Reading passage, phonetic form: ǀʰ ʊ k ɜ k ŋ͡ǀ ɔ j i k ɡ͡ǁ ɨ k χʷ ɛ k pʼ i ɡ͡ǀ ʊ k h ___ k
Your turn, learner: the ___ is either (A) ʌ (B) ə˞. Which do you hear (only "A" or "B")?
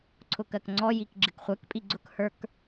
B